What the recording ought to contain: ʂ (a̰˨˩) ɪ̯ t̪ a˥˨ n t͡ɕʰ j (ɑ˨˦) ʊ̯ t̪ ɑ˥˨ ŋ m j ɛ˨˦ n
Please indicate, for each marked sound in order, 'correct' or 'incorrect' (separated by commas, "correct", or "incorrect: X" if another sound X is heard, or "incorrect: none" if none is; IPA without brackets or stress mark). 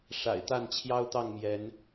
correct, incorrect: ɑ˦